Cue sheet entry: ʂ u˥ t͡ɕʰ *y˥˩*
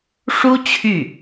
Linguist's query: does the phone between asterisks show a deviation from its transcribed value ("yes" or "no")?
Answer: no